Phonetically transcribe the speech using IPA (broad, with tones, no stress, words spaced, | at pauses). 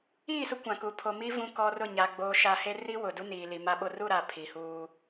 iː˦˨sʊ˦kʷã˨ku˨ pʰo˨mi˦ vũ˦kɔ˦rʊ˦˨ ɲa˨ ɡ͡boː˨ʃa˨ he˦ ri˦ wʊ˨du˦ niː˨li˨ma˦ɓo˦ ru˦˨ɾa˨ pʰi˨huː˦